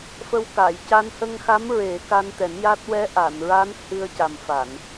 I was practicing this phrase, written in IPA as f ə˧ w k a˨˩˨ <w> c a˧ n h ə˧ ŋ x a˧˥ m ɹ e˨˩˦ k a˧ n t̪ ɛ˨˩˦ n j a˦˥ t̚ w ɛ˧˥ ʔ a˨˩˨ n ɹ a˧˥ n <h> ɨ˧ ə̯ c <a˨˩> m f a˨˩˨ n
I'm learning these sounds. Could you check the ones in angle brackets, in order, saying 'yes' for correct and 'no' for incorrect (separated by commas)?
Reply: no, yes, yes